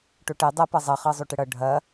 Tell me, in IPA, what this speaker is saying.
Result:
ʈ o ʈ ɛ dˤ ɐ p ʌ zˤ ʌ χ ɤ zˤ o ʈ ɘ ɽ ʌ ɖʱ ɐ

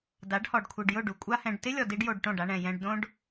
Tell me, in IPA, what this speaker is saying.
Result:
d a˨˦ ɖ h ɔ˨ ɖ kʷʰ i˨ ɖ j ʊ˦˨ ɖ u˨ kʷʼ a˦ h ɛ̃˧ ɖ t ɪ˦ lʲ ɔ˨ d i˦ ɖ j o˧ ɖ ʈ õ˦˨ ɖ a˧ ɳ ɛ̃˨ j ɛ̃˧ ɖ d õ˦ ɖ

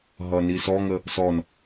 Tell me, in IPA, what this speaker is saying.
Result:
ɦ ʌ n i s ɔ ŋ ə | s ɔ n

